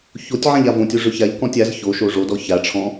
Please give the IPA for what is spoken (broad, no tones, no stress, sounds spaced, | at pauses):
ç o tʲ ʕ ã ʎ a v õ tʲ o ʐ ø ç a ʎ k ɔ̃ tʲ a z ç o ʃ o ʐ o d ɔ ç a ʈ͡ʂʰ ɔ̃